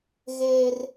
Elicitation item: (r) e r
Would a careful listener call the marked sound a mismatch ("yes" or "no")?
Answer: yes